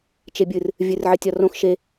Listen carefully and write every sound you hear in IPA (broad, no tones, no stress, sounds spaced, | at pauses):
t͡ʃ e bʲ ɨ r | vʲ ɨ r ʕ ə tʲ ɒ r õ x ʃ e